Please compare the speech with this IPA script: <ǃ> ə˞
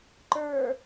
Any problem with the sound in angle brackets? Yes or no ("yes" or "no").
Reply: no